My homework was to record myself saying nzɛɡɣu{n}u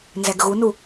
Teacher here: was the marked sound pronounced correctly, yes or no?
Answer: yes